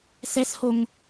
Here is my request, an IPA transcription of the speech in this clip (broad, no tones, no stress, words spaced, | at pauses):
sɛshoŋ